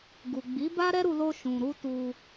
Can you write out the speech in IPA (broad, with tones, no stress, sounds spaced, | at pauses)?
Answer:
ɡ u˨ ɡ͡b i˨˦ b a˦ ɾ ɛ˦ ɾ u˧ l o˧ ʃ ũ˨ ɾ u˧ t u˧